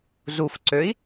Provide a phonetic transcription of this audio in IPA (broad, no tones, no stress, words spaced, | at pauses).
zufǀøi̯